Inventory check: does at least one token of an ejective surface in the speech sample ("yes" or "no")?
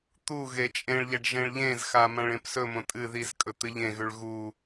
yes